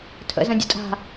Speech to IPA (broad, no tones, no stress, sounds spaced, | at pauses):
tʰ ə̰ z ə̃ dʲ ə̰ tʼ a̤